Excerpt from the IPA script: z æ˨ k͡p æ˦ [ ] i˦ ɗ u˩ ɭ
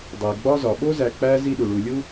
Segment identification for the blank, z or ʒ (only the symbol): z